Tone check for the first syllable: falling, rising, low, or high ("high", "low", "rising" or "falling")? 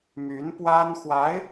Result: rising